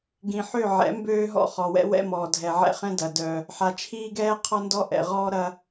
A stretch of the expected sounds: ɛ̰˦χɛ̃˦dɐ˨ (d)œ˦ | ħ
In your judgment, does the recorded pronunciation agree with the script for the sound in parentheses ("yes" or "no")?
yes